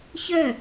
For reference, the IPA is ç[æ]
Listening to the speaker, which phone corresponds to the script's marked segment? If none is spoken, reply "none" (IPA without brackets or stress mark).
œ